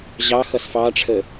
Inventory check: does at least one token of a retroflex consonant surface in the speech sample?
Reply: yes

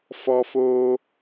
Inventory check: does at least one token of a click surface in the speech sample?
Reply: no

